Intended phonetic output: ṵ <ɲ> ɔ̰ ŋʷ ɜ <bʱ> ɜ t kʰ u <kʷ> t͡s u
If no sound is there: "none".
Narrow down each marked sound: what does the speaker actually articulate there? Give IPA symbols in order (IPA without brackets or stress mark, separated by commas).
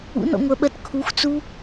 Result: n, ɓ, xʷ